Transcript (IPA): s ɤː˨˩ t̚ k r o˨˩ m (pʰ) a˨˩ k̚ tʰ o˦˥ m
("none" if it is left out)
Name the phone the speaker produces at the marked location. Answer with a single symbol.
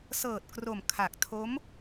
kʰ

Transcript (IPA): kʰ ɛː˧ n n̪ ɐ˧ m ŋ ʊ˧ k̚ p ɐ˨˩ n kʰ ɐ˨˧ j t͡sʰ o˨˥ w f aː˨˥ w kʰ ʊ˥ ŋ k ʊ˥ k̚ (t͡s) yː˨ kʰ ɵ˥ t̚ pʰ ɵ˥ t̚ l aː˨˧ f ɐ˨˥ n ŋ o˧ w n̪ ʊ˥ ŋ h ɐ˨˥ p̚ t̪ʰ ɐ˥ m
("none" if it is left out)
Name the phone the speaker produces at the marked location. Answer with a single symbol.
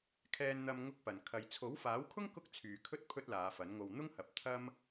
t͡sʰ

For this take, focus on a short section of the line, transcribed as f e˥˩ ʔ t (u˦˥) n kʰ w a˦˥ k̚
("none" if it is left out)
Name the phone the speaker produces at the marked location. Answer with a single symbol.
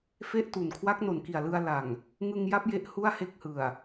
u˨˩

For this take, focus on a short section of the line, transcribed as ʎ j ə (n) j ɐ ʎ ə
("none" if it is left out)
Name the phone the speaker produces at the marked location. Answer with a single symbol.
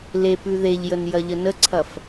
n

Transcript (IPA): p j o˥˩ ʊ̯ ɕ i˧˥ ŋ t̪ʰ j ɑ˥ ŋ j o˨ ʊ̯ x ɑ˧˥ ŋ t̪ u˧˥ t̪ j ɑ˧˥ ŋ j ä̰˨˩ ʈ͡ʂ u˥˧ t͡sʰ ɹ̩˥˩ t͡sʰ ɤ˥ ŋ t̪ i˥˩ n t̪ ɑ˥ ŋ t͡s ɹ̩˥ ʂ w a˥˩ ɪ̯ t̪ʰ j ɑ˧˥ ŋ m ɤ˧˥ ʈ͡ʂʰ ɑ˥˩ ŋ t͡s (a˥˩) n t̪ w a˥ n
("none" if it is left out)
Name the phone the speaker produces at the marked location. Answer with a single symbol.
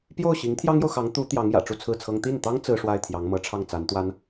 a˧˥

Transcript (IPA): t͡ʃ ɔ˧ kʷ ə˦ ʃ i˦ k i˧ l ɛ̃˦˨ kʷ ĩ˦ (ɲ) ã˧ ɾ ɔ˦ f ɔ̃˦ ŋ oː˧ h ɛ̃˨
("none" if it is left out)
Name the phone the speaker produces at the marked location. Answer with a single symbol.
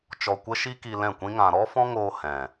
ŋ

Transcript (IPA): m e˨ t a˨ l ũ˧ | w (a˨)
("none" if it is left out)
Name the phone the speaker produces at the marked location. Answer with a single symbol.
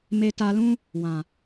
ã˨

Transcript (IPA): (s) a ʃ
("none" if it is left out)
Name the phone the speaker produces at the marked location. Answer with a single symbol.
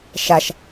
ʃ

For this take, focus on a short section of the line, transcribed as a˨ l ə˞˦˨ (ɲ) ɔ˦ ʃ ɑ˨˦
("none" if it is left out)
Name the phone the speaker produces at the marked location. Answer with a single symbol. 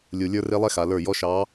j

